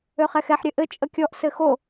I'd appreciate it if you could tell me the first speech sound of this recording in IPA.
ø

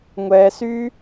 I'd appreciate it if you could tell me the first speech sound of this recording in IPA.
ŋʷ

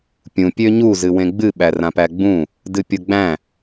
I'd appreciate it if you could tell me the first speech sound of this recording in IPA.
pʲ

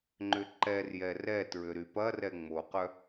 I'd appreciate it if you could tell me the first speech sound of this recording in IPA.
ŋ͡ǃ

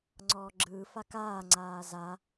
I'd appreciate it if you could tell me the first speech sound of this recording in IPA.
ŋ͡ǀ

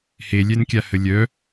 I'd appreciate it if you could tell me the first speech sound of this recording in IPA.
h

